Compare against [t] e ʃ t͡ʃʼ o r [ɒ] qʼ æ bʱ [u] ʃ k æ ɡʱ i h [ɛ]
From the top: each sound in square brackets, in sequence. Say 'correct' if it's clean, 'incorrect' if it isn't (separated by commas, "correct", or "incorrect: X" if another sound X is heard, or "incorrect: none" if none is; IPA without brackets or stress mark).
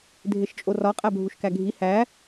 incorrect: dʱ, correct, correct, incorrect: æ